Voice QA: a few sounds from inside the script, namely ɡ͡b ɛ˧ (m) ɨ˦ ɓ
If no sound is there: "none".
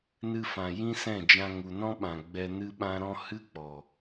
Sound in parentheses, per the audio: n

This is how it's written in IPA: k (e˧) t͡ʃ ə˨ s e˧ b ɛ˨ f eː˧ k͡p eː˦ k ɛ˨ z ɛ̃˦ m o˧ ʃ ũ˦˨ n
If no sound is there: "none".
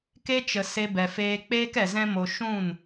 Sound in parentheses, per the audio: e˦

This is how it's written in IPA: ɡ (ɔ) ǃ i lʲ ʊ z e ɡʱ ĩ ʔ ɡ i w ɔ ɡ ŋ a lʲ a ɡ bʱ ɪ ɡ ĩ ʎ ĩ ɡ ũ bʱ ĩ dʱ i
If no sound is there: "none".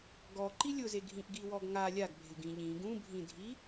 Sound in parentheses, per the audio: ɔ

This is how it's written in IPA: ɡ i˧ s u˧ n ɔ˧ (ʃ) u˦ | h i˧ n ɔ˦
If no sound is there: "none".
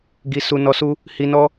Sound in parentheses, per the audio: s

